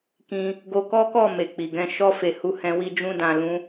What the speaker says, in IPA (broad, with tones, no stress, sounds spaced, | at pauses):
k ĩ˧ | ɡ o˧ k ɔ˦ k ɔ˦˨ m e˨ k͡p i˨ ɡ ɛ̃˧ ʃ ɔ˧ f e˨ h u˧ h ɛ̃˧ w i˦ d͡ʒ ũ˦ d ã˧ l ũ˦